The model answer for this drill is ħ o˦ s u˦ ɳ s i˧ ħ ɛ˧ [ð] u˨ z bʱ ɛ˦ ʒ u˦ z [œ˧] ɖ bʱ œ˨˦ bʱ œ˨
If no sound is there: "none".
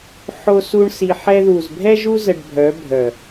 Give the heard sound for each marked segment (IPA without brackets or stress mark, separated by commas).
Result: ð, ə˧